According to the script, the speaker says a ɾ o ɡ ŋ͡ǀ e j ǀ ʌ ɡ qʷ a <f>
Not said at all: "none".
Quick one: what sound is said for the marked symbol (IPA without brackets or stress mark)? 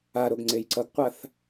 θ